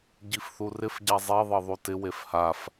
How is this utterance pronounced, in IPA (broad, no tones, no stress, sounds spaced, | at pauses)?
ɟ i f θ u r ɪ f ɟ a zˤ e ðˤ ɤ ðˤ u t ɪ w e f h a f